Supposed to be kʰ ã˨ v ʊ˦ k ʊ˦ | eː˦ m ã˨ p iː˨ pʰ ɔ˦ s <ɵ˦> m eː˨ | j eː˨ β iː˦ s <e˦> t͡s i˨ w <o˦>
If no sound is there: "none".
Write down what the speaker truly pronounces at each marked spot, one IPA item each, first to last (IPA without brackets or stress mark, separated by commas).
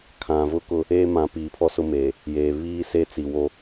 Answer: ʊ˦, e˦, o˦